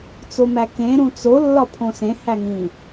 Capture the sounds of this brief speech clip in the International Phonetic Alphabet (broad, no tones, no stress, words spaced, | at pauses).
t͡somækẽ ɾũt͡so lːɒpʰõsẽ hæŋĩ